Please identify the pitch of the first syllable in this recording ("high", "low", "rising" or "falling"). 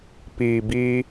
low